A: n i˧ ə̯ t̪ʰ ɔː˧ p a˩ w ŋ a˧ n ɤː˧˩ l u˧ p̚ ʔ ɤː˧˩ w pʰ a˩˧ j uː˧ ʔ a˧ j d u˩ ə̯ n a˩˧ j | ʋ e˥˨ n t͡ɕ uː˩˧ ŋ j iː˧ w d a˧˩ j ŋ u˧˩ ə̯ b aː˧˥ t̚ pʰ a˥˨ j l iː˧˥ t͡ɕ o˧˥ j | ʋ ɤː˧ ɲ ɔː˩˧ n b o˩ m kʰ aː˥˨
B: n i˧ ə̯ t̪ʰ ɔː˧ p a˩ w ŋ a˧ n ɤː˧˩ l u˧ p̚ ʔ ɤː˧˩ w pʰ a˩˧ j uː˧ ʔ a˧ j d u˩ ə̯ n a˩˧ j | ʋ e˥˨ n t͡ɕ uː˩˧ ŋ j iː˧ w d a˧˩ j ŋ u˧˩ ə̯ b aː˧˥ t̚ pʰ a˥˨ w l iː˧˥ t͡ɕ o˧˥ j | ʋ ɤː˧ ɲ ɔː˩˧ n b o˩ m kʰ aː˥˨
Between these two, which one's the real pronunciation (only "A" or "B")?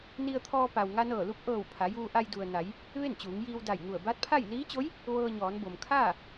A